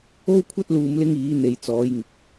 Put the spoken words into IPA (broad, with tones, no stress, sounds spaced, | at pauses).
o˥ w kʷʰ ɐ˥ t̚ l uː˧ m l ɪ˧ ŋ iː˨˧ n̪ e˨ j t͡s ɔː˨˧ j ŋ ɪ˨ k̚